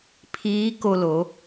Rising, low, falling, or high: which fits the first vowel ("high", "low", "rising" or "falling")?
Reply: rising